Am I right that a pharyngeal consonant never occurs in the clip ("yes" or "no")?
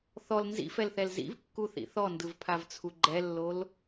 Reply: yes